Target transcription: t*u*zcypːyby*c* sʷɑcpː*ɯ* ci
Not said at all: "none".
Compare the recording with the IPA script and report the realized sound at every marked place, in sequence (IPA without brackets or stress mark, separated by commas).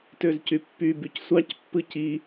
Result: ø, c, ɯ